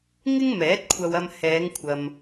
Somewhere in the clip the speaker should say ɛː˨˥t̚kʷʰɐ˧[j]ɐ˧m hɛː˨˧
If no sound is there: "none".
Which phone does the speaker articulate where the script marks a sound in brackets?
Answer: w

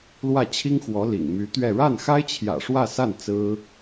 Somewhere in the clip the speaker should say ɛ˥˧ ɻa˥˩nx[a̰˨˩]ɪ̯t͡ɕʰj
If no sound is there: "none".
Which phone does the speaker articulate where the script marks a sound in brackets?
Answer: a˥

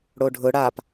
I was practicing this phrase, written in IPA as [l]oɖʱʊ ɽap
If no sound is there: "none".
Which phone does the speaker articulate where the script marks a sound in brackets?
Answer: ɽ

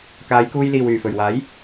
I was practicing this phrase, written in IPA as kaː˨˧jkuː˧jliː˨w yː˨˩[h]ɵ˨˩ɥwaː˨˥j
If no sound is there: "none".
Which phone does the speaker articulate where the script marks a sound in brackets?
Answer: f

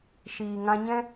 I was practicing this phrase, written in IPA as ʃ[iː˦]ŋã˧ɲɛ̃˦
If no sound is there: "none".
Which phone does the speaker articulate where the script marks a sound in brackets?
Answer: iː˨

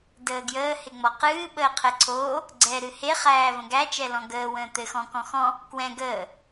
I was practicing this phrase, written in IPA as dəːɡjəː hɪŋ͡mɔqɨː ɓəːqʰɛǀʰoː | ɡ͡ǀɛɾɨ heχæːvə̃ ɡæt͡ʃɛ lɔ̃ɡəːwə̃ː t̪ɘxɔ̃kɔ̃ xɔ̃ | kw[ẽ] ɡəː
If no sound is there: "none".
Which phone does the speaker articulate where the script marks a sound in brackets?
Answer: ɛ̃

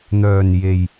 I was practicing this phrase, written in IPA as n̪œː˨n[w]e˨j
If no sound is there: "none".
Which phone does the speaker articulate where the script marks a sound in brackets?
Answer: j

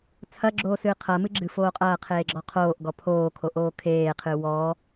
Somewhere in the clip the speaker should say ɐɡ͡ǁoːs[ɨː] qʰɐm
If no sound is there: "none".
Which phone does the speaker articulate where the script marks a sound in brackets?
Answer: ɨː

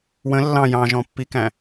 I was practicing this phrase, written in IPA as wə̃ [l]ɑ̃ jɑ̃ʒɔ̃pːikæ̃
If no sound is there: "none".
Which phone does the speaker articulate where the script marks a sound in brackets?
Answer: lː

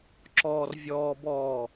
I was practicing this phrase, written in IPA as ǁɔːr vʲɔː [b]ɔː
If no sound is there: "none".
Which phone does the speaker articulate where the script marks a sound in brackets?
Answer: b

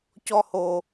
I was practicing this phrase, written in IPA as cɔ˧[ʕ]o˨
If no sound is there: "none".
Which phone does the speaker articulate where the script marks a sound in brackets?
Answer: h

